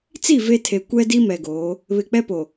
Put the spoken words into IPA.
t͡si˦˨ ve˦tʰe˨ kʷɛ˦di˦ mɛ˨ɡoː˨˦ | βɪ˨k͡pɛ˦po˨

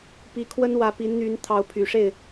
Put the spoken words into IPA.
pi˧˥kʰwə˥nwä˧˥ pi˧˥nn̪y˧˥n t̪ʰɑ˧˥ʊ̯pʰy˨˩ʂe˥˩ɪ̯

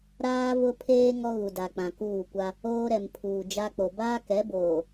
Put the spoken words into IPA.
ɾaː˦vʊ˦pʰeː˦ ŋɔ˦ɣu˨da˨k͡pã˨ kuː˦˨kʷa˦ | oː˦ɾɛ˨m pʰuː˨d͡ʒa˦k͡po˨ baː˦kɛ˨˦boː˨

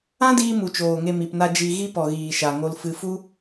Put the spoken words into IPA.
ã˦diː˧ mu˨t͡ʃoː˨ŋe˧ mi˨pna˧ d͡ʒi˧ɣi˦ pɔ˨ɣiː˨ ʃa˨ŋo˧lfɨ˧ fu˦

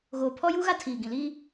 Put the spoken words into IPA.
ɣoː˨pʰɔ˦juː˦ɣa˦ tʰiː˨ ɡĩ˨liː˦

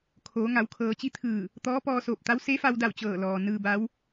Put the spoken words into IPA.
kʰoː˩˧ ŋa˩˧wkʰɤː˩˧t͡ɕi˧˥ t̪ʰɯː˧˩ | t̪ɔː˧˥pɔː˧soː˧˩p̚t̪a˧˥w se˧˥fa˧wda˧˩w t͡ɕɤː˧˩lɔː˩ nɯː˧ba˧˥w

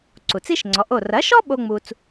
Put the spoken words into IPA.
ǀu˩t͡si˥ʃŋ͡ǀɔ˩˥ʔo˥˩ rɐ˩˥ʃɔ˥ ɓo˥ŋ͡mu˧t͡s

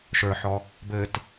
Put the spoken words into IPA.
ʃə˞ħɔ | bɘt

